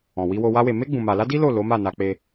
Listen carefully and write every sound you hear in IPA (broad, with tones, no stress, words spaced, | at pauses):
ɔ̃˨wi˧wo˧ wa˦we˧ me˦ ɡ͡bũ˧ma˧ la˦di˦lo˦˨ lo˨˦ma˦˨ na˧k͡pe˧